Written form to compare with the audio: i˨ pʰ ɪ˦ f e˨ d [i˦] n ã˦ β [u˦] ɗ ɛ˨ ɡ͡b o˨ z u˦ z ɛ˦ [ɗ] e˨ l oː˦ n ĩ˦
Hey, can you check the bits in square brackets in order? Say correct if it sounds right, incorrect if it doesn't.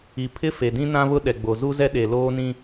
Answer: incorrect, incorrect, correct

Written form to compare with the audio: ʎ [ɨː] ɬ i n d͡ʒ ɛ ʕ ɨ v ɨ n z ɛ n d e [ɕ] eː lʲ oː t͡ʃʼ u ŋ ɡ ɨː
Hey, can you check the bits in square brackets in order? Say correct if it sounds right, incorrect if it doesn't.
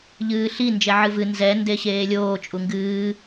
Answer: correct, correct

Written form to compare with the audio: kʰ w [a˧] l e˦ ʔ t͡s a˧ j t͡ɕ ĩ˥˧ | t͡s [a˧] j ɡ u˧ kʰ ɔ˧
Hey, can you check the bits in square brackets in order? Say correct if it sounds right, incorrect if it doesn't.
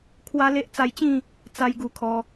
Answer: incorrect, incorrect

